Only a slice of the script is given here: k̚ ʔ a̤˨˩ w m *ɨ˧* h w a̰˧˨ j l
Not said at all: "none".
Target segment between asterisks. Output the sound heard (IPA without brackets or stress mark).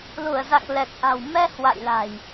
ɛ˧